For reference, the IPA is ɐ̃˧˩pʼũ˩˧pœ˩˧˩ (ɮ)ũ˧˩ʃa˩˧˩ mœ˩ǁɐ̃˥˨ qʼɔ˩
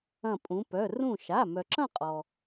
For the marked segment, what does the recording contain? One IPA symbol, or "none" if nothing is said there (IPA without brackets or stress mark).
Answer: r